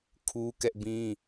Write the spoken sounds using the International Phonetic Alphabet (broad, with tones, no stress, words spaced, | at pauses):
kʰu˦kɛ˦ʔbĩ˦